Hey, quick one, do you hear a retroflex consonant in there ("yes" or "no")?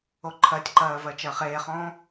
no